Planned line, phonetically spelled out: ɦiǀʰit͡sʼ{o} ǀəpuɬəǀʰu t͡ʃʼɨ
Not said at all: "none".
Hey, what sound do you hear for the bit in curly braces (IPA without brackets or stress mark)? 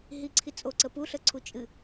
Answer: o